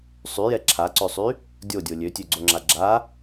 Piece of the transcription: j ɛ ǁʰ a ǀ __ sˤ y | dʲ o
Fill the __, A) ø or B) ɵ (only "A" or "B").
A